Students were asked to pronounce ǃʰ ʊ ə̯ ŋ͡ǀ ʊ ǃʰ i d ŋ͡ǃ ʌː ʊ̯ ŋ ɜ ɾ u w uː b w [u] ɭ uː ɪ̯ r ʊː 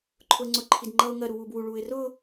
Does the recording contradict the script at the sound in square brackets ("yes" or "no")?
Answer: no